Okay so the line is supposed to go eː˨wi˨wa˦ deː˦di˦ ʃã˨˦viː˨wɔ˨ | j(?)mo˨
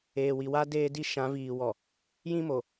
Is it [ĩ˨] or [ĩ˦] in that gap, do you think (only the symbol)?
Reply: ĩ˦